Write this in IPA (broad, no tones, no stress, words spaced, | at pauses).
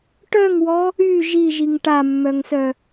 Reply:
ʈœŋwɔ | y ʒiʒiŋ ʈamːœŋsœ